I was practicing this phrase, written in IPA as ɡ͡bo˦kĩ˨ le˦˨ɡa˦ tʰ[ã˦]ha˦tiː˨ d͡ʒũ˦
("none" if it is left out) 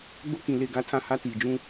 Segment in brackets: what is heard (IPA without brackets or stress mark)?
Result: ã˦